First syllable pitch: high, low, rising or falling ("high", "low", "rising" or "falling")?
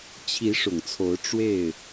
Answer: rising